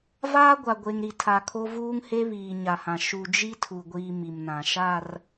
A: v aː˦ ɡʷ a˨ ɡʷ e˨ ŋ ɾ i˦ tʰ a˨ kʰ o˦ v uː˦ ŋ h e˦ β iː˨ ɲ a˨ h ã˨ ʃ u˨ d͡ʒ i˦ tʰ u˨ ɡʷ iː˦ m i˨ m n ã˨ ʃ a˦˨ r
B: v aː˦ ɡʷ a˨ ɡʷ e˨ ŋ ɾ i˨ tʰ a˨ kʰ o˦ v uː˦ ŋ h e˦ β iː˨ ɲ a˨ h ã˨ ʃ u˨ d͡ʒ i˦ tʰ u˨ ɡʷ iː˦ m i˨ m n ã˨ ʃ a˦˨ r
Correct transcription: B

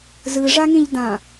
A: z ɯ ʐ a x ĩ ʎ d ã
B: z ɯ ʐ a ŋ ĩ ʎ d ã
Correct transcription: B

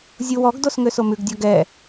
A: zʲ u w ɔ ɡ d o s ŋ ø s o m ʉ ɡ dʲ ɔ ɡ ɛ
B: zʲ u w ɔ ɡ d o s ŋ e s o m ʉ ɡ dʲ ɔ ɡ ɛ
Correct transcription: A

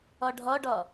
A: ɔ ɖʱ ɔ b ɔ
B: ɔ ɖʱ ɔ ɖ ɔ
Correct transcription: B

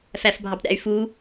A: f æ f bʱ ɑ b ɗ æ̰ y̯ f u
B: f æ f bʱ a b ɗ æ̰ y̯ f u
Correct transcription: A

